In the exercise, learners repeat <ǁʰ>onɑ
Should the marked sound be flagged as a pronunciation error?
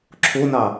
no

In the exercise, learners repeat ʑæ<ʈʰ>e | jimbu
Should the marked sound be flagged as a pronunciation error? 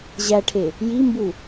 no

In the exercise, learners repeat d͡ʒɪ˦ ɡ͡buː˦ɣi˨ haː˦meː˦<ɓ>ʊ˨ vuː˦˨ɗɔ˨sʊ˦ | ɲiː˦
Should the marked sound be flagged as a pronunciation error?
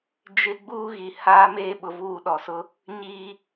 no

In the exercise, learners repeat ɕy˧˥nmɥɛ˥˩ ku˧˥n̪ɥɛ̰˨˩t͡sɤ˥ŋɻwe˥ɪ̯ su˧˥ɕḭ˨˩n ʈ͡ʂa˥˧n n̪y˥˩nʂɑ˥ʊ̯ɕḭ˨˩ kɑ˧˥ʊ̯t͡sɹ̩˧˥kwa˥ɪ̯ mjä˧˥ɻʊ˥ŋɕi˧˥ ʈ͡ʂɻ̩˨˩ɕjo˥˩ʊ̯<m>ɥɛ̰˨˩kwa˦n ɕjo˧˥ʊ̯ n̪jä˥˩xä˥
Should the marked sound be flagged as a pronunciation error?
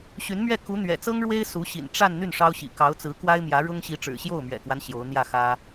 no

